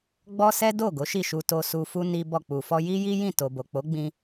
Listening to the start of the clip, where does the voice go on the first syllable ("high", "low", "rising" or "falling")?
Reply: high